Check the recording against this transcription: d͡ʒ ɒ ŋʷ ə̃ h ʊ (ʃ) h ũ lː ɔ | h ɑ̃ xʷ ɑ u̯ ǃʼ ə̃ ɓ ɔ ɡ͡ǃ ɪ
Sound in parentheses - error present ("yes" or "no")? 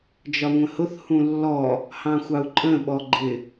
yes